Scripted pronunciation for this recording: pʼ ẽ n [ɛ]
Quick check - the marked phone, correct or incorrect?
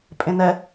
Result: correct